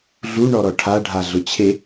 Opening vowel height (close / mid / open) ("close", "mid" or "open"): close